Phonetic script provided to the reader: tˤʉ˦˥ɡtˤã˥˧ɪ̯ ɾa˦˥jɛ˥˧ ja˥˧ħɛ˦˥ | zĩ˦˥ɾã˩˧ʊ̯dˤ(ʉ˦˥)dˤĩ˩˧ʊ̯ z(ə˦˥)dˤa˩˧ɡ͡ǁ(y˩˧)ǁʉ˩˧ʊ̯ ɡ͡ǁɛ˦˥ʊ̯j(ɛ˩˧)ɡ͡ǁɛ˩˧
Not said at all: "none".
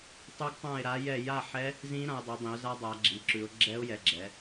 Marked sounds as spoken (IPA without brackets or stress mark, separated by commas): ʉ˩˧, a˦˥, i˩˧, ɛ˩˧